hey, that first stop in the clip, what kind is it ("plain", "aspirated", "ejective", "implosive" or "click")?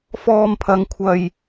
aspirated